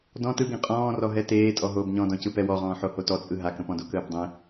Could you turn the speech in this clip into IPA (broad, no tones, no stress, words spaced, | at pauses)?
dɔ̃ tɯɡẽ qʼɔ̃ː rɔɦɛteː tʼɔɦoːbɲɔ̃dɔ̃ cɯpɛwɔʁɔ̃ː ħohotɔt͡sʼɯ ɦakə̃pɔ̃do kəːbdˤẽ